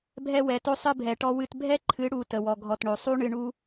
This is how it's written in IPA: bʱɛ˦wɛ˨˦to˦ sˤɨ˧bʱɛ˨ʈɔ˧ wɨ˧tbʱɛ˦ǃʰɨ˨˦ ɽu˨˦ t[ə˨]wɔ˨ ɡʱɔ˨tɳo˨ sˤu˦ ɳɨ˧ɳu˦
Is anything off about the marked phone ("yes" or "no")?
no